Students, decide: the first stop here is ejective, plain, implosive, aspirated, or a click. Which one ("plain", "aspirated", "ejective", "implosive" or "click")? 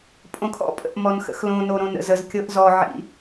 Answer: ejective